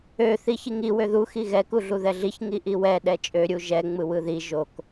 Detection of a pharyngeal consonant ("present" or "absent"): absent